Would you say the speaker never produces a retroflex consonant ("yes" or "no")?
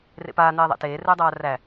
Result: yes